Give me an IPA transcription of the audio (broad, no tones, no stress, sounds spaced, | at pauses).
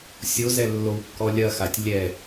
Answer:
sʲ o z ɛ lː o w kː ɔ lʲ ɐ x a tʲ lʲ ɛ